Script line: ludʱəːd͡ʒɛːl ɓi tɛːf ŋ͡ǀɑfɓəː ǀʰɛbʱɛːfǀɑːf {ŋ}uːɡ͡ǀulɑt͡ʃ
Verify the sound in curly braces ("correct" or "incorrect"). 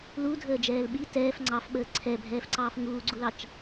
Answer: correct